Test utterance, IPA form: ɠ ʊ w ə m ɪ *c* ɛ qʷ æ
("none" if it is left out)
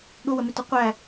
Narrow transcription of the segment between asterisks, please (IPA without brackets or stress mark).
t